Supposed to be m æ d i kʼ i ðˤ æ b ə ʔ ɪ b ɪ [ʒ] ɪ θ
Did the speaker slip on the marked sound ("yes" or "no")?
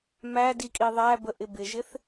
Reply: no